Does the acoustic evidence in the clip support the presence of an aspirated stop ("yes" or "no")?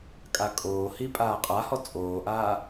no